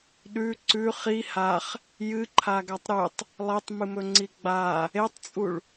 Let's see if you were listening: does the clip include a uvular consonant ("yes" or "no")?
yes